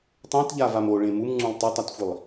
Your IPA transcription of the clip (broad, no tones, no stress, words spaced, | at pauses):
tˤẽtʎavam oɭẽ mumŋ͡ǀũlˠ tˤetˤatxʷilˠ